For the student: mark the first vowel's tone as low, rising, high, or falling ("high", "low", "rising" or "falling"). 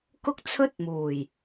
high